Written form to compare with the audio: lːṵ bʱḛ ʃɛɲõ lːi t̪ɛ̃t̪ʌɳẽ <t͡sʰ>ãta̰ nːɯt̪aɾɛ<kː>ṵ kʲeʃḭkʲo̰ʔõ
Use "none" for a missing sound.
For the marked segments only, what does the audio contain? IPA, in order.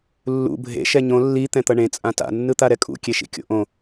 t͡sʼ, kʼ

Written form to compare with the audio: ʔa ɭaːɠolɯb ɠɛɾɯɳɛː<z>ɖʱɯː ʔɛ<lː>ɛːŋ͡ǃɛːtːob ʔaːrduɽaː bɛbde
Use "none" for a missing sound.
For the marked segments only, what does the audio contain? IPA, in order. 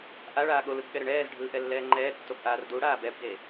z, lː

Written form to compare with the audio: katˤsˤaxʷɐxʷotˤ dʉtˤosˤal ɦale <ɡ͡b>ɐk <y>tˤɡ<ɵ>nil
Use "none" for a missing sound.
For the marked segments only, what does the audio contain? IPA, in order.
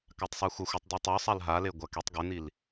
ɡʷ, e, ɵ

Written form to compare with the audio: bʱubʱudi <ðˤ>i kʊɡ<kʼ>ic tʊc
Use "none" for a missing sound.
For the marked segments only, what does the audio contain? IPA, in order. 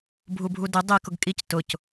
dˤ, kʼ

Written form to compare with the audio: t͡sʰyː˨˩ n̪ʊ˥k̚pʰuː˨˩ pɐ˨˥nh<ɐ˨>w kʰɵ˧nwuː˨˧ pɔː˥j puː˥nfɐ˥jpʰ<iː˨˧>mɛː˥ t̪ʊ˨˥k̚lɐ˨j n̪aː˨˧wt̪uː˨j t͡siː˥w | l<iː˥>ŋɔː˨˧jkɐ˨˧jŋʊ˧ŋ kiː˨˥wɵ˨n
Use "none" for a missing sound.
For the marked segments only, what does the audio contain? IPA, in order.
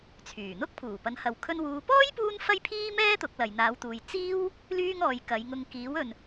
ɐ˨, iː˥, yː˥

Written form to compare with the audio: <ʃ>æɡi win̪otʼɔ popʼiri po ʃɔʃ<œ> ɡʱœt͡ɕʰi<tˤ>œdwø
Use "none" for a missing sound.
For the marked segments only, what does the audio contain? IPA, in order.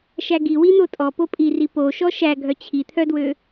ʃ, æ, t̪ʰ

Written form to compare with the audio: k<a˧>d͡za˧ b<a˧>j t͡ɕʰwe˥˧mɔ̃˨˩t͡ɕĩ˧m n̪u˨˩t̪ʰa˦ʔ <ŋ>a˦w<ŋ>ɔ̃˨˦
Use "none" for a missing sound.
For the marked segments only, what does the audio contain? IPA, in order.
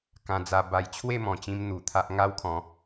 ã˧, a˧, ŋ, kʰ

